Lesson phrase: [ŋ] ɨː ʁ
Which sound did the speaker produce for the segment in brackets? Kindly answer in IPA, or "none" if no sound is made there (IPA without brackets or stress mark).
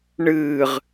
ɳ